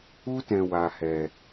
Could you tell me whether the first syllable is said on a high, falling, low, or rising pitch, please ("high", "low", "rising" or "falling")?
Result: high